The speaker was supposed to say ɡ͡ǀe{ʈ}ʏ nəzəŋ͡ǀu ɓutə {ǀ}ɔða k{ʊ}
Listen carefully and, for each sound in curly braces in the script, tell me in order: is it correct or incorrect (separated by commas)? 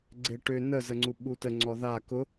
correct, incorrect, correct